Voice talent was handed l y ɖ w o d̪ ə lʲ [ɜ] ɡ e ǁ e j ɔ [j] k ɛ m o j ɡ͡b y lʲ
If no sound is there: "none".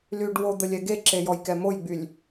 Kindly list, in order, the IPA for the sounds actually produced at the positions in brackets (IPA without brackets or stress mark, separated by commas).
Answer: ɛ, j